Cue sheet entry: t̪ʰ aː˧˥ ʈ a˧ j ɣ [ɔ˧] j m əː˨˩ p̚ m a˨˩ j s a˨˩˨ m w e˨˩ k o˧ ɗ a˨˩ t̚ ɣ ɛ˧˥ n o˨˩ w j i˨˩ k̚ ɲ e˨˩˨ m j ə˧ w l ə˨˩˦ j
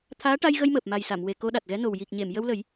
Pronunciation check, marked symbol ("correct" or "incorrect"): incorrect